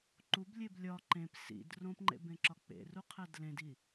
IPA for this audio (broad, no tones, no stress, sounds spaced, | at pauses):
ǃ u b lʲ e b lʲ ɒ ǃ ẽ p s ḭ d r õ p ŋ͡ǃ ḛ b ẽ ǁ ɒ k͡p ḛ r u qʰ æ d l ẽ d i